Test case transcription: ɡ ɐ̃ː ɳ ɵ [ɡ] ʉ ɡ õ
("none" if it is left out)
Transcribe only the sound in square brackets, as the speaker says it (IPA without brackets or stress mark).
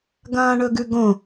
ɡ